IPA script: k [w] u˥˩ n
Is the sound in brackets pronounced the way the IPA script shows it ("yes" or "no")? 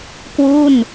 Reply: yes